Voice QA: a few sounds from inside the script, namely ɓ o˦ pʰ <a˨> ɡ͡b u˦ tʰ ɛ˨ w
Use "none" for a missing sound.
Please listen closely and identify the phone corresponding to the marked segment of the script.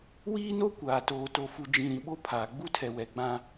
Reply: aː˨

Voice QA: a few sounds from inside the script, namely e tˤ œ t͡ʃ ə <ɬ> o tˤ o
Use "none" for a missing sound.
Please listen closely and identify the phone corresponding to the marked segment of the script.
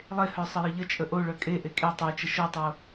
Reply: ʃ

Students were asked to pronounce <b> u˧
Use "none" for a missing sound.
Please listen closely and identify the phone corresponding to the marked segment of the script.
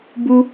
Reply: b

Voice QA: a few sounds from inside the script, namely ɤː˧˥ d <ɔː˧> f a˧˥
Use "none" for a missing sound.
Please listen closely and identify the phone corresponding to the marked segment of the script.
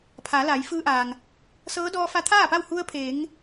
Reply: ɔː˧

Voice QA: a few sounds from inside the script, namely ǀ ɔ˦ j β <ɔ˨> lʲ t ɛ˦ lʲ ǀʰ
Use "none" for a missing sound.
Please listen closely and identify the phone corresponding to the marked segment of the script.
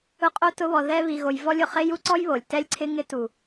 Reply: o˨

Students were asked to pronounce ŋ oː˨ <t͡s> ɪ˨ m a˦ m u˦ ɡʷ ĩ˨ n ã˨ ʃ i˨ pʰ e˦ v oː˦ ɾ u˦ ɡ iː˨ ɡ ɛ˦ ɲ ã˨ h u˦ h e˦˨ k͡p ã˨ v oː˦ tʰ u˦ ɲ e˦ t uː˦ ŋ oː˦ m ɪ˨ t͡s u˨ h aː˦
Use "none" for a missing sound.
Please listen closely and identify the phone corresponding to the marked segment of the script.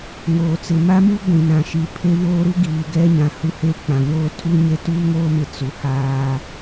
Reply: t͡s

